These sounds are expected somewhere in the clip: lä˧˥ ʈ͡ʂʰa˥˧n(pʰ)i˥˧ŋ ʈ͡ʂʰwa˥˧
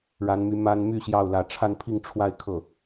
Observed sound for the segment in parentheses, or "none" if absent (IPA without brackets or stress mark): pʰ